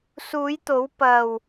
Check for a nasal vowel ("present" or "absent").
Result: absent